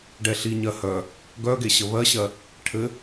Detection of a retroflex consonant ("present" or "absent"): present